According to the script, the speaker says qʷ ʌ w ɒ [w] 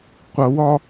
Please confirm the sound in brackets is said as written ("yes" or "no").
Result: no